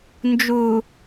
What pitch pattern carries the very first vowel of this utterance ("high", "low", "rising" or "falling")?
low